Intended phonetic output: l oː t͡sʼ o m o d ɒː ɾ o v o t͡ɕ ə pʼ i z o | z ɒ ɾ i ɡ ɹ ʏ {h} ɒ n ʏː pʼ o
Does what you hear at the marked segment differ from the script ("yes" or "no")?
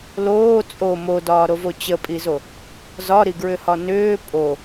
no